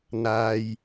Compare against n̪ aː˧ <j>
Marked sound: correct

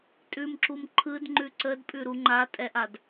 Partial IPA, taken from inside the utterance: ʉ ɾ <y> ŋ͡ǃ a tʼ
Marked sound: incorrect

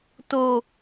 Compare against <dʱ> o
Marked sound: incorrect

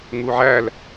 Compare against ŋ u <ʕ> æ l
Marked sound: correct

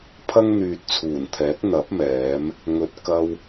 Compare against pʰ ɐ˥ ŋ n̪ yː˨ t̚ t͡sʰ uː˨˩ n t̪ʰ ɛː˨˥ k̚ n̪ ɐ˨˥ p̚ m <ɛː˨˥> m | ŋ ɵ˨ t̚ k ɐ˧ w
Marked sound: correct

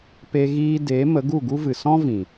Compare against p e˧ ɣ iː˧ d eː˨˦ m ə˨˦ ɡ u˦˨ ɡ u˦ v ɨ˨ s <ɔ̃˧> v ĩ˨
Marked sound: incorrect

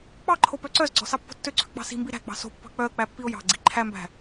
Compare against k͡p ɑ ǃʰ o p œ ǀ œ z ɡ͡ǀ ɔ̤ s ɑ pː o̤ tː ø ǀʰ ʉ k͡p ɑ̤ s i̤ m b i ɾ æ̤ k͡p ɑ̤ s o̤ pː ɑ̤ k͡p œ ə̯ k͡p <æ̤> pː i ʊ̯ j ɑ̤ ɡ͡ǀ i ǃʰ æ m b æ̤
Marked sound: incorrect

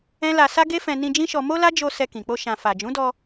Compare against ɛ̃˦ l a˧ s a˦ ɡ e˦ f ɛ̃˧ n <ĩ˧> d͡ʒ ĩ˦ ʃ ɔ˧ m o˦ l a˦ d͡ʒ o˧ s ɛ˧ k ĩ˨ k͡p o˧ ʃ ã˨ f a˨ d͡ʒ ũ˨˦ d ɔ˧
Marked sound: correct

